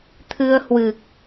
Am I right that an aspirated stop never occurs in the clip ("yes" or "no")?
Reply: no